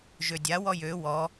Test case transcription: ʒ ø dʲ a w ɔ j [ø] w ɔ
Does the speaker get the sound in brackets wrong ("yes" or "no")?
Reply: no